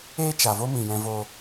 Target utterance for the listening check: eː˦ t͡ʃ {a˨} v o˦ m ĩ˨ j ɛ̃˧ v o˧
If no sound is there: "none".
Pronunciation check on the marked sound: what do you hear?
a˨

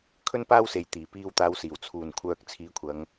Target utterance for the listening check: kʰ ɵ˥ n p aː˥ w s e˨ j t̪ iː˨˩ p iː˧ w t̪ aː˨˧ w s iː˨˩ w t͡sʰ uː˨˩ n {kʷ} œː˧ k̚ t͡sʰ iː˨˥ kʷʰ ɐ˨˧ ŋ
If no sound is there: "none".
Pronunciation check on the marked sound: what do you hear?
kʷʰ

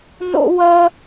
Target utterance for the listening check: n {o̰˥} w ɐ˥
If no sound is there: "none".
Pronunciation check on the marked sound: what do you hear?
o̰˥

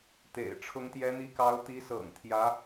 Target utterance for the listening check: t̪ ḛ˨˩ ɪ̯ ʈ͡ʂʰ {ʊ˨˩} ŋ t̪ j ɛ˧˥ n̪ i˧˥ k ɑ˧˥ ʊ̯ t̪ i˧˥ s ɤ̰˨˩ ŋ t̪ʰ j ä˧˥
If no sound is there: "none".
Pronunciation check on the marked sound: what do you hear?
ʊ˧˥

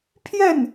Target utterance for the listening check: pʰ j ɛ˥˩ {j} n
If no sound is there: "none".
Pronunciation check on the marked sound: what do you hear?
none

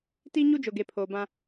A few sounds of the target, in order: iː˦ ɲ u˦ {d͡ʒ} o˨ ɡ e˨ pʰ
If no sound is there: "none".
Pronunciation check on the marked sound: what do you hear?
d͡ʒ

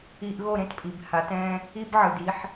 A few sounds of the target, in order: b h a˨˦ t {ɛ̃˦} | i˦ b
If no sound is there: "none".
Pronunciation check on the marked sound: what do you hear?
ɛ̃˦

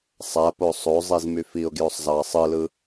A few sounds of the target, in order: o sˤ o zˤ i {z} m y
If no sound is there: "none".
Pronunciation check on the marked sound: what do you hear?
z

